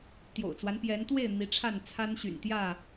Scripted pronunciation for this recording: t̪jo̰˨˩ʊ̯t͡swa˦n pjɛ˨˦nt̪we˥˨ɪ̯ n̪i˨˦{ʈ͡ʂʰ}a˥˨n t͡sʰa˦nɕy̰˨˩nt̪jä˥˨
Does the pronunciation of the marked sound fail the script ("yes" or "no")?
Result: no